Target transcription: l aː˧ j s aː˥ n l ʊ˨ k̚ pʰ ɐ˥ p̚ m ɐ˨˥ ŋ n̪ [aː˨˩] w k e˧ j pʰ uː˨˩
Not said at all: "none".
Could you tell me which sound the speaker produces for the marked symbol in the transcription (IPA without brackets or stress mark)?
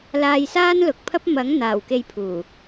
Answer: aː˨˩